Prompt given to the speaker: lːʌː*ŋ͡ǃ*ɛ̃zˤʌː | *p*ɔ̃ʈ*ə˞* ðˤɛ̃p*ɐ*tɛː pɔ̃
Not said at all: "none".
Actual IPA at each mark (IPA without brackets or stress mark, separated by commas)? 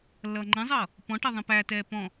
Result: ŋ͡ǃ, p, ʌ, æ